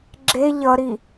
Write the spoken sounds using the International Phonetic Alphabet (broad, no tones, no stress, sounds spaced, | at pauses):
ɡ͡ǁ e ʎ ʌ ɾ i